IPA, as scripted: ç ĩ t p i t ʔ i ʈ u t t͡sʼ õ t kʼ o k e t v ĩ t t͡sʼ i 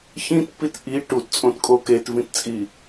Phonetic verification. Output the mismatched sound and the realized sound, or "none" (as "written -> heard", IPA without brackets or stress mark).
none